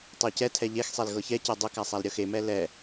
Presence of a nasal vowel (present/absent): absent